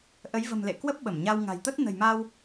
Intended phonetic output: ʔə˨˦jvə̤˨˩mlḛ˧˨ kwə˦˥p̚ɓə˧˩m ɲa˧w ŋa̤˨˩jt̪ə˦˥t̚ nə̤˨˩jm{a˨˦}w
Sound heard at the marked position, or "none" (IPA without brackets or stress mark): a˧